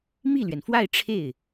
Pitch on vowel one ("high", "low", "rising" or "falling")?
falling